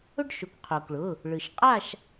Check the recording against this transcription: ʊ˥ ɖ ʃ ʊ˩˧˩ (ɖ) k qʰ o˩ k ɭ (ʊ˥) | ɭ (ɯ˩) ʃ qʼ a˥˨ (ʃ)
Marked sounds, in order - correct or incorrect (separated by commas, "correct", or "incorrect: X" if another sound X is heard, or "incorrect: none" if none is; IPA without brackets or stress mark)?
incorrect: none, incorrect: ʊ˩˧˩, correct, correct